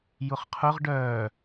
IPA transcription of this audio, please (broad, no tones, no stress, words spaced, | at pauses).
jʊχqʰʊʁ ɖœː